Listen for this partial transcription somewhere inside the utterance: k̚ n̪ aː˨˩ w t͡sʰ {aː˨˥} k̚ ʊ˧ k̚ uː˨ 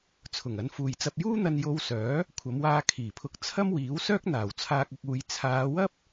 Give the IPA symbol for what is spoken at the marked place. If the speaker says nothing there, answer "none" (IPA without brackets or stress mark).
aː˧